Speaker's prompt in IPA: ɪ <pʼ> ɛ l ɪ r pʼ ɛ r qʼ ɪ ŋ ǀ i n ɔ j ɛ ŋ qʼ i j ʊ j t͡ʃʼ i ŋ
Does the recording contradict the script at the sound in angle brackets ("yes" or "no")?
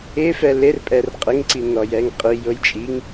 yes